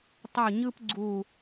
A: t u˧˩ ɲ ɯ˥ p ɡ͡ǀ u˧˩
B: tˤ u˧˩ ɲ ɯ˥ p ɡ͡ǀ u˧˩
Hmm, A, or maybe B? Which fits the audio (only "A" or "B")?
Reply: B